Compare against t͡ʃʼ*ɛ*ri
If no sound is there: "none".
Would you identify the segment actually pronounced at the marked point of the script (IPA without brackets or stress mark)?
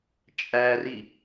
æ